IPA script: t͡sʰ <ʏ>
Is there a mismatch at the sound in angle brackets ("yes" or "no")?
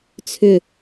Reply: no